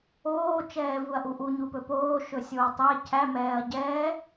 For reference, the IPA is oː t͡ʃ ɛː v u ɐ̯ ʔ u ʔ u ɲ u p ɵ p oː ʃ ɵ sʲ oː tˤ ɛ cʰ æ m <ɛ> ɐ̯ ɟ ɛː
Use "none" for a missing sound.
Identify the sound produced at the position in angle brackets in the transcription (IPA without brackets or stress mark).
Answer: ɛː